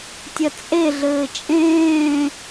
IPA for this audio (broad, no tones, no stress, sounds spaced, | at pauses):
tʲ ɐ t͡sʼ e ɮ ɘː t͡ʃʼ ẽː